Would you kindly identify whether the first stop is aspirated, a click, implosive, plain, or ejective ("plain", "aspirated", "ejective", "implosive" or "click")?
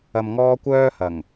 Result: plain